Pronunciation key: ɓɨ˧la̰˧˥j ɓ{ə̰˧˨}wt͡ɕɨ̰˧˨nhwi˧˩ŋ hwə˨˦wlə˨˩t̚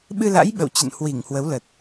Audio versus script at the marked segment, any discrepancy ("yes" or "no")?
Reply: no